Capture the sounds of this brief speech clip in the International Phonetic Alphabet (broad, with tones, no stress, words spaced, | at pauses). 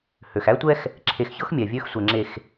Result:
hø˨x æ˦tʷɛ˦x | ǁʰe˨xçɤ˦x mʲɛ˨vʲø˦x sʷɛ˨ŋ͡ǁe˨x